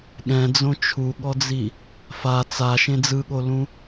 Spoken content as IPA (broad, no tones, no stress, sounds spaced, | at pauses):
ɠ ɛ̃ d͡z õ t͡ʃʰ u ɠ ɔ d͡z i | f a t͡s a ʃ ẽ d͡z ɯ ɠ o l ũ